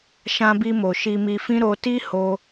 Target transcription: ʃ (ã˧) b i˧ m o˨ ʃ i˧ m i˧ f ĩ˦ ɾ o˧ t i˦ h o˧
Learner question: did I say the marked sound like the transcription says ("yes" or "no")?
yes